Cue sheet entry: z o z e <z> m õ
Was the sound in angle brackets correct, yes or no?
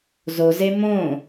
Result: no